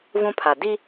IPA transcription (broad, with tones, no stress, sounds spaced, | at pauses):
v ũ˦ pʰ a˨ d i˦